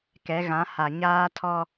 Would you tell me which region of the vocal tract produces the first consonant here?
velum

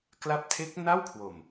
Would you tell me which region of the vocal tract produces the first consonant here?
velum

